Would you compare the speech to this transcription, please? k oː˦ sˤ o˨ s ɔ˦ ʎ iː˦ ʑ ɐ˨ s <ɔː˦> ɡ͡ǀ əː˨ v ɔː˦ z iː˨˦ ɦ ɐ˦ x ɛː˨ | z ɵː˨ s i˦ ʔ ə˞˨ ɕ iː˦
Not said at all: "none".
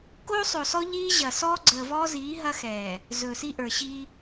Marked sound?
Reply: ɔː˦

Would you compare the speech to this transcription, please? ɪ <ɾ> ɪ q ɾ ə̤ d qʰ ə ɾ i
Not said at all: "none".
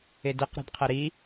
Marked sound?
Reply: d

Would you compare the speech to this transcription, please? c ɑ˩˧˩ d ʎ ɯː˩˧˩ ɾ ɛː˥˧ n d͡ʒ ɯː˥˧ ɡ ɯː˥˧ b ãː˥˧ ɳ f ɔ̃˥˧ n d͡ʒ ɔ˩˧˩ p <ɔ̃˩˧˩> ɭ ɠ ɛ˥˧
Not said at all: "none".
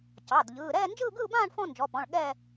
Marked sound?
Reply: ɔ̃˩˧˩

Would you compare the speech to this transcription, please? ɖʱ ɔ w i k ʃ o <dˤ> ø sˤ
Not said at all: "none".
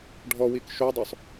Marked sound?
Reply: dˤ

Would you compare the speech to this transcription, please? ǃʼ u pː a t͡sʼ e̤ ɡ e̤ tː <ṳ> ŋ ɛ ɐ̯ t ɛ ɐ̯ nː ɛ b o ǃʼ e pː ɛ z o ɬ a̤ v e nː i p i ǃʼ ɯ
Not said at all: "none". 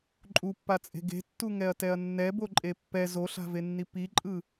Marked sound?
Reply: u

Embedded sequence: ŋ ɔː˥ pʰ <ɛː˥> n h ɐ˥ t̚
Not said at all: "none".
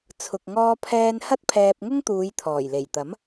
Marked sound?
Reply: ɛː˥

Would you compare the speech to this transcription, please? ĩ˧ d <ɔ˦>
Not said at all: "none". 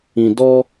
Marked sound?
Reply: ɔ˦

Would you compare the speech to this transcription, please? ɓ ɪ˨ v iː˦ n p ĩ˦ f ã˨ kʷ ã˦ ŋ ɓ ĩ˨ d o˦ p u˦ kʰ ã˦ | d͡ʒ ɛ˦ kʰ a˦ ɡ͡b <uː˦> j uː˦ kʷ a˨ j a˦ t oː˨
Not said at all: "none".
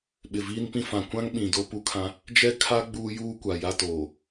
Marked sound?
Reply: uː˦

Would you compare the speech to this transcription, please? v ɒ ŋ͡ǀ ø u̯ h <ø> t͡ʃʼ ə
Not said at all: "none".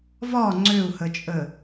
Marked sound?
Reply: ə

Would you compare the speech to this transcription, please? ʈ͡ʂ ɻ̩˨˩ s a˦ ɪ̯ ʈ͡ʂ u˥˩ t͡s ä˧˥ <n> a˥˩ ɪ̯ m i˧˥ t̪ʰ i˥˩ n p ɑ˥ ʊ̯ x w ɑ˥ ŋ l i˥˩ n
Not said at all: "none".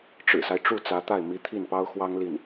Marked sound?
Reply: t̪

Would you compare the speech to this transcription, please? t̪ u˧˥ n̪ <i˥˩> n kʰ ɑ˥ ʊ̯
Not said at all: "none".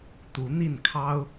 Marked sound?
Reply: i˥˩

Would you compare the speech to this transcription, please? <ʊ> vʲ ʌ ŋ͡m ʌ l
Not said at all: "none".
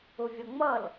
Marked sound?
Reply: ʊ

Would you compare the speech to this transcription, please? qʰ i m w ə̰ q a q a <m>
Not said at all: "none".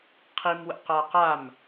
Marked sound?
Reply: m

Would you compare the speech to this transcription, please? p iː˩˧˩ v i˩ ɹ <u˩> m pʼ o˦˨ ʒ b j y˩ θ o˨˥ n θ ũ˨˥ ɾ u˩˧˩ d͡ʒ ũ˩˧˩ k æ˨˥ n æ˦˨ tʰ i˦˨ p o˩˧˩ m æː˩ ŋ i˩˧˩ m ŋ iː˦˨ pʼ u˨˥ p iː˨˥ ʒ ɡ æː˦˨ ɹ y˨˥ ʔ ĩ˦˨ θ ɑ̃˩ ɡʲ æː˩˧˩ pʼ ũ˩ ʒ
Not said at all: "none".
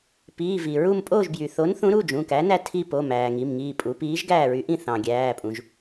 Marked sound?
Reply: u˦˨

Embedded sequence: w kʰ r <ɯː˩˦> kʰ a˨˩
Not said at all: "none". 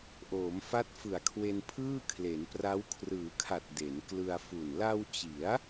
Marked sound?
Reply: ɯː˩˦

